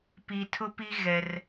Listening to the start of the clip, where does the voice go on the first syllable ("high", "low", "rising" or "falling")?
low